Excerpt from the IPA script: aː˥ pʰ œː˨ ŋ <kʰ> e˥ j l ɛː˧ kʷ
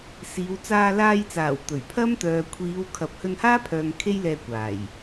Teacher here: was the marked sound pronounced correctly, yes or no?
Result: yes